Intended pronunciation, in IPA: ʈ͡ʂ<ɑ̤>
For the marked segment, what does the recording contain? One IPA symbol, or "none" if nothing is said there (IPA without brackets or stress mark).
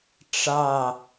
ɑ